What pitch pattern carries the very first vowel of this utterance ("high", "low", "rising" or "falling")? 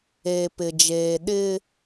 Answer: low